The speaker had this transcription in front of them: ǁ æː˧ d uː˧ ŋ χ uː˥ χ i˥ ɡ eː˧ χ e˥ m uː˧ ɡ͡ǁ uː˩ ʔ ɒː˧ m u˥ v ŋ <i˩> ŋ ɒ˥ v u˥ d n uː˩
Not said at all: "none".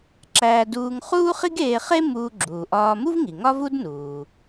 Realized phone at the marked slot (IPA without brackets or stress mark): i˩